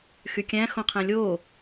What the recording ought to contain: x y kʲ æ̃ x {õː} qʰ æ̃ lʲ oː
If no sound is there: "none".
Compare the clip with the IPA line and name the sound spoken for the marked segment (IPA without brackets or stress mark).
õ